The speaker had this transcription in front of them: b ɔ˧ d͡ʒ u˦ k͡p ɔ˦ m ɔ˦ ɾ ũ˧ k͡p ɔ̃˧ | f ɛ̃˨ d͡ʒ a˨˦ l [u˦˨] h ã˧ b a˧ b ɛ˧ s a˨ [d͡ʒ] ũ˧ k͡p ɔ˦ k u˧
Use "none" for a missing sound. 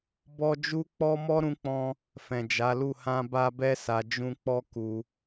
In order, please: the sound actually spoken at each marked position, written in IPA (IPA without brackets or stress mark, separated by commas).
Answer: u˦˨, d͡ʒ